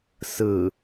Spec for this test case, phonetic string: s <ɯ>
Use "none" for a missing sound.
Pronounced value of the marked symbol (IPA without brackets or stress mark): ɯ